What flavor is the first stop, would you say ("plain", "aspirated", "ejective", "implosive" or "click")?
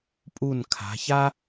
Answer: ejective